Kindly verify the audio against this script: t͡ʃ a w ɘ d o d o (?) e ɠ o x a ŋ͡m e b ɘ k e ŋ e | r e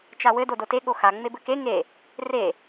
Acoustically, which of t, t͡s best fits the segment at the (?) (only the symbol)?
t